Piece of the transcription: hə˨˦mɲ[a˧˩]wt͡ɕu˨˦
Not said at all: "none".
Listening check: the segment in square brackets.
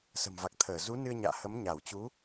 a˧˩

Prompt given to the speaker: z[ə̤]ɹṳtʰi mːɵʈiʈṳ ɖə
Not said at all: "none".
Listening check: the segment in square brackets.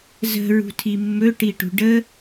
ə̤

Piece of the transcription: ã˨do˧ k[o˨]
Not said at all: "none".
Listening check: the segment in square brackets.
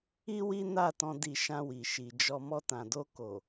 o˨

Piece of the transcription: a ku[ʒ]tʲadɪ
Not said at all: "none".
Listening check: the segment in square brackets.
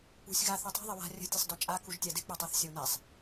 ʒ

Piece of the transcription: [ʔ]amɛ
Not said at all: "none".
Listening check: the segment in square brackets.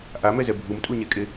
ʔ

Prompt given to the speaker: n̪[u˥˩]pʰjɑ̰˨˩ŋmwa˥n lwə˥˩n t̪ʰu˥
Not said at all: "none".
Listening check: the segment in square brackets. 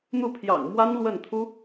u˥˩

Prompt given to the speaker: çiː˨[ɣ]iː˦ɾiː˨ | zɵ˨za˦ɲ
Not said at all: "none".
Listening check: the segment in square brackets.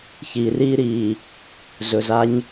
r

